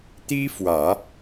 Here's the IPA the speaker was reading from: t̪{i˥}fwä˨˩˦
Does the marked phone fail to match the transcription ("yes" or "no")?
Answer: no